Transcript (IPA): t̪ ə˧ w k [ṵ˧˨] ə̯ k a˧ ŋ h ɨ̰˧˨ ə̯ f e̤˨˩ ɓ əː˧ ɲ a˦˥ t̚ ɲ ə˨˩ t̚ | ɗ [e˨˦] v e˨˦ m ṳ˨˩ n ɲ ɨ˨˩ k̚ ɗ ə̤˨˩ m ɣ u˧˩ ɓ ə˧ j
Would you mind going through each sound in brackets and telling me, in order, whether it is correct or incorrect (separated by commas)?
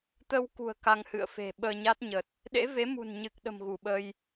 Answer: incorrect, incorrect